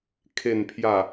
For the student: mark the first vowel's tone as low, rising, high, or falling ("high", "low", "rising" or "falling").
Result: low